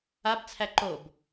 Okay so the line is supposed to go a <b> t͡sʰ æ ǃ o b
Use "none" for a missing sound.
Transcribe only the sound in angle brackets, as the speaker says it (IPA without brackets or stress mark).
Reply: b